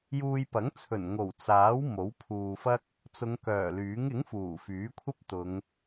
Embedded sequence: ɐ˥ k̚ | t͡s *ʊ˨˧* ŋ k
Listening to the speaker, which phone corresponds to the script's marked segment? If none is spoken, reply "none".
ʊ˨˧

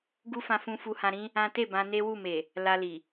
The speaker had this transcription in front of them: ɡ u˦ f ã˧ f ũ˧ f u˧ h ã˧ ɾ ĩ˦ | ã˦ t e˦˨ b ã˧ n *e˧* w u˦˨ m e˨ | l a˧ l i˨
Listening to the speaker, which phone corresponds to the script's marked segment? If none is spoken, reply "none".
e˦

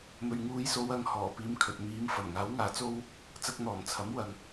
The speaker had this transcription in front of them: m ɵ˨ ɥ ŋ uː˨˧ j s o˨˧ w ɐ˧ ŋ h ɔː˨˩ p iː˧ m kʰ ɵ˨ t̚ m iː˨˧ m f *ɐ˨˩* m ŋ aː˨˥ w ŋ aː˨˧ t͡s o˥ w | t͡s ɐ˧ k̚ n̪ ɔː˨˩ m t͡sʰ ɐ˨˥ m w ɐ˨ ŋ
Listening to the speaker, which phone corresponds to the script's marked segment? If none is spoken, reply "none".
ɐ˨˩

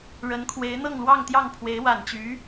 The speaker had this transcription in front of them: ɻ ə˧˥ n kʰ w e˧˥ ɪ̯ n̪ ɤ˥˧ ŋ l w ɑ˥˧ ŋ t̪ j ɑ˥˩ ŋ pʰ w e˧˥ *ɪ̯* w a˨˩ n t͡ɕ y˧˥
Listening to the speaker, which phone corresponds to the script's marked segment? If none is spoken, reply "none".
ɪ̯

